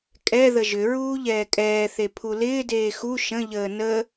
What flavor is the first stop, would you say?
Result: ejective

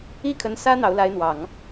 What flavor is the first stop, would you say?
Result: aspirated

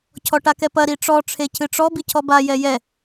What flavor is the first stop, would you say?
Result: aspirated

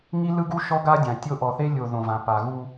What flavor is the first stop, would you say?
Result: plain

